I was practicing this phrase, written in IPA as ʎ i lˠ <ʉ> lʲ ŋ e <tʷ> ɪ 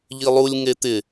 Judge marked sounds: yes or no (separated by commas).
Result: no, no